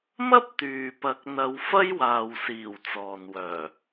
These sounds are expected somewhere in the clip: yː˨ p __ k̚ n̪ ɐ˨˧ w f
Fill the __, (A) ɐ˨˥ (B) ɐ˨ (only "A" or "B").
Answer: A